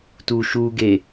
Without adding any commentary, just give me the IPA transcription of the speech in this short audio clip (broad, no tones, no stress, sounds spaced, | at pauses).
t u ʃ u ɡ e